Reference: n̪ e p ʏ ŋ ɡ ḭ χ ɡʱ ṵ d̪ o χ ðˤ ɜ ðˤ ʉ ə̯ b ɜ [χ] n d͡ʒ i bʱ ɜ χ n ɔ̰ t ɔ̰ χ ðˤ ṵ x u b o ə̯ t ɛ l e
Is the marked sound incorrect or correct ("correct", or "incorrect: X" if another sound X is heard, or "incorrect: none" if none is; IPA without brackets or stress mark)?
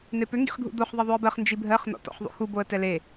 correct